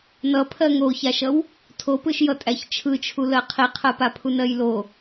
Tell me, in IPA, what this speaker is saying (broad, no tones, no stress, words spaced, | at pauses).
nʌpʰɜ ŋoçaʃʌw | tʰopɯʃjʌ tʼæçt͡ʃʰɯt͡ʃʰulɜ qʰiqʰɜpapʰun ɜjlo